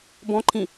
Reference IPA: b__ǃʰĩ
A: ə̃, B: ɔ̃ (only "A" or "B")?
B